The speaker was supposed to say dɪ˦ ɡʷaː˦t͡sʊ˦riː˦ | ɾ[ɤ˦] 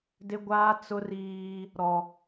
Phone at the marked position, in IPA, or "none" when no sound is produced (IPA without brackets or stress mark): ɔ˦